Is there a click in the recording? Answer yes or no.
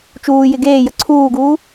yes